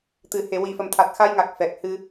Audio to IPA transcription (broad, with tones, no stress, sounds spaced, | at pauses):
t̪ ɨ˨˩ h e˨˩˨ w i˨˩ f ə˨˩ m t̪ʰ a˨˩ t̚ x a˧ j ŋ a˨˩ k̚ f ɛ˨˩ k̚ h ɨ˧